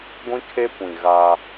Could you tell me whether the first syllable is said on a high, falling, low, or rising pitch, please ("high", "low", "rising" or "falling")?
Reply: high